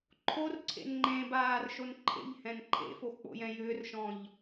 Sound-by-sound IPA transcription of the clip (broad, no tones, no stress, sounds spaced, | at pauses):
ǃʰ o r ǀʰ ḛ n ŋ͡ǃ ẽ b aː r ʃ o n ǃʰ ḛ ʎ h ɛ̃ n ǃʰ ḛ f o x k͡p o̰ j ɛ̃ j ʏː r ʃ ɔ̃ ʎ